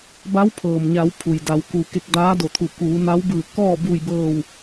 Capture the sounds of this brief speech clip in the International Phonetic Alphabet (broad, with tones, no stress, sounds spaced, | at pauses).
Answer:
b a˧˥ w pʰ ɤː˩ m ɲ a˩˧ w pʰ u˩ j d a˩˧ w k u˩ k e˧ k̚ d aː˧˥ d o˧˩ t̪ʰ u˧˩ k uː˩˧ n a˧˥ w b ɯː˧˩ k ɔː˥˨ b uː˧˩ j b ɤː˧˩ w